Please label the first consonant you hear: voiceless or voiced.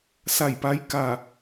voiceless